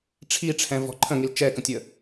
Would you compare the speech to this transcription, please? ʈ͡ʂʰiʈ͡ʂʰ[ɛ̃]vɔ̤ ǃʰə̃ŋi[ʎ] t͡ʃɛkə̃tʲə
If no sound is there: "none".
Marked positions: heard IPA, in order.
ɛ̃, l

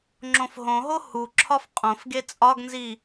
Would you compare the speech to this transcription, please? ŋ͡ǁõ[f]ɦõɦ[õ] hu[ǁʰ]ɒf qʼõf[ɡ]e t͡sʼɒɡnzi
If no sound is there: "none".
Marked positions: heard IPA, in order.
f, o, ǁʰ, ɡ

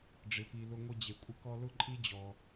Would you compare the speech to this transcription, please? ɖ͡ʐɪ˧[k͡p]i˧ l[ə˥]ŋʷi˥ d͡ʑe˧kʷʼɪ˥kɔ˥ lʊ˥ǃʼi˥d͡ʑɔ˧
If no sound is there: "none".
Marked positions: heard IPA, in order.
p, ʊ˥

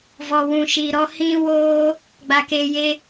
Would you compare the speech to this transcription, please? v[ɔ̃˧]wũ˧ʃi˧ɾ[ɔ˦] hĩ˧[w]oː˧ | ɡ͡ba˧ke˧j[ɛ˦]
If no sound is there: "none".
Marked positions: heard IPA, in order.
ɔ˧, ɔ˦, w, e˦

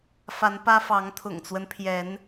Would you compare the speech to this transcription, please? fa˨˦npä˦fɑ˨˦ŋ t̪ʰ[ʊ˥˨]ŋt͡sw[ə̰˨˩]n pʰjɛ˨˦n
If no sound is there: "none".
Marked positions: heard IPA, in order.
ʊ̰˨˩, ə˦

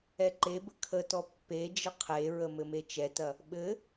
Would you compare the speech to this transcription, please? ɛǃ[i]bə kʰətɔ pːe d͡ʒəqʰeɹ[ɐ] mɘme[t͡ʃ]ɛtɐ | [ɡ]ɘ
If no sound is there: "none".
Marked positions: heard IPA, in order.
e, ə, t͡ʃ, ɓ

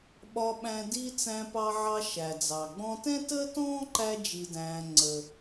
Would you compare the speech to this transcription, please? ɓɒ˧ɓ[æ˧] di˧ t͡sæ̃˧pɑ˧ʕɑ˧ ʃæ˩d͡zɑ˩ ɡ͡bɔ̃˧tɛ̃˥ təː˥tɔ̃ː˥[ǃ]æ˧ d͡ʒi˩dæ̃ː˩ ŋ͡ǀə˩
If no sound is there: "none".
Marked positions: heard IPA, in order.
æ̃˧, ǃ

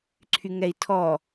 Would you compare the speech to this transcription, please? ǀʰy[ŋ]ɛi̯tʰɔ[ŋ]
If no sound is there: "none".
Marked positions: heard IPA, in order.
ŋ, none

